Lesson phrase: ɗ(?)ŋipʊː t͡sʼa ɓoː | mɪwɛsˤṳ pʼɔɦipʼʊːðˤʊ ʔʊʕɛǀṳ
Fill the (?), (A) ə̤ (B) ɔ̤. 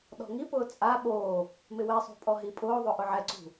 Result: B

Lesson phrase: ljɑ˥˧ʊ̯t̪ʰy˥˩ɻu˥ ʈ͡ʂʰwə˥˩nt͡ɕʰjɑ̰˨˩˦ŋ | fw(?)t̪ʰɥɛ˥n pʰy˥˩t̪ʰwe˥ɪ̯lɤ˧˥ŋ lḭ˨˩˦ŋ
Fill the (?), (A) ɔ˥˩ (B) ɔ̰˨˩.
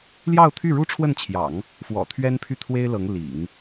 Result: B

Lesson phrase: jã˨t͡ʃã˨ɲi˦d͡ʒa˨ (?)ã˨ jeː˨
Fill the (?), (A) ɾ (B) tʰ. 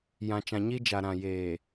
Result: A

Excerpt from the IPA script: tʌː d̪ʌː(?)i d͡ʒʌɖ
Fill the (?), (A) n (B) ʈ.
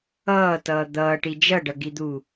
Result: B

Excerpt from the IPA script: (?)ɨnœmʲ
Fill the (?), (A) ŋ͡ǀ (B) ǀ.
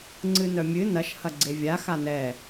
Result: A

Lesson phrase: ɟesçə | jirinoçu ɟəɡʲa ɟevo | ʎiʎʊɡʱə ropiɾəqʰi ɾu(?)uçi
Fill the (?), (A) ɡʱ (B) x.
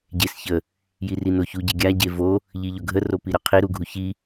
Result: A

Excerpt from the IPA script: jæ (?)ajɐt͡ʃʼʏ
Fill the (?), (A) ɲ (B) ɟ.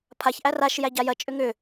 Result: B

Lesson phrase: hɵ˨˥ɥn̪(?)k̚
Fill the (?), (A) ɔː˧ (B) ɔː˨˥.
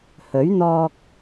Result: A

